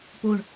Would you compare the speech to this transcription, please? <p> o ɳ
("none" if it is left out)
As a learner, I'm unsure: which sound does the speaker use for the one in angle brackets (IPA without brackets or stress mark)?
p